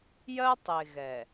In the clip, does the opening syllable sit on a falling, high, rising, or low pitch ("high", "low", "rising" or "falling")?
high